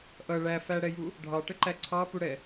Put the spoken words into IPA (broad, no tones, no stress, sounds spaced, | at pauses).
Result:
ʔ ʌ ɭ æ f æ ɽ ɛ j u | ɖʱ ɑ ʈ ə ǃ æ ǀʰ ɑ p u ɽ ɛ